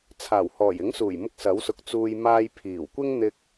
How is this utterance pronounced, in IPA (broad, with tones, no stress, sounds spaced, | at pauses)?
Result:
t͡sʰ aː˨˩ w h ɔː˨˩ j ɪ˨˥ ŋ s uː˨˩ j m ʊ˧ k̚ s ɐ˨˥ w s ʊ˨ k̚ t͡s uː˨ j m aː˧ j pʰ iː˨˩ w kʷ ɪ˥ ŋ n̪ ɪ˧ k̚